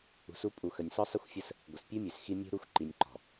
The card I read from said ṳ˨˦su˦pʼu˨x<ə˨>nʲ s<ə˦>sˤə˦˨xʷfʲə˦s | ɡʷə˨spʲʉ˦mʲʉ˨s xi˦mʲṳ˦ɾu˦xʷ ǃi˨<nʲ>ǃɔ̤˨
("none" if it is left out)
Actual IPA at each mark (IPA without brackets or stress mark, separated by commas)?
ə˨, ɔ˦, nʲ